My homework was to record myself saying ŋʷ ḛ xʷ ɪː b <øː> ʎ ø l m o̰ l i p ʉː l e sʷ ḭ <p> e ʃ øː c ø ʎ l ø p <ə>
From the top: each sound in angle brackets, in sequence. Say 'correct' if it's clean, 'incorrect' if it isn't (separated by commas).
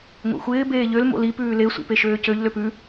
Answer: incorrect, correct, incorrect